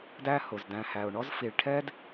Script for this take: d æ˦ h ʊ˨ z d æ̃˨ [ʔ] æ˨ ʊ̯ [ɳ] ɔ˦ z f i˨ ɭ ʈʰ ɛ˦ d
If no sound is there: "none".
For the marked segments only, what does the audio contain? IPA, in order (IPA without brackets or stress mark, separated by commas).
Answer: h, ɳ